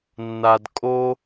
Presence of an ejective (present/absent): present